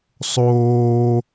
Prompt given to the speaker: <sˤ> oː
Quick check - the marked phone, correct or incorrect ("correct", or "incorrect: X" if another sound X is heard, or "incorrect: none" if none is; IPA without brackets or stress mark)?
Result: correct